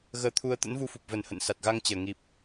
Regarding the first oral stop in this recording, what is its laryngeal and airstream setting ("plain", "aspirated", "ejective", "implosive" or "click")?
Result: aspirated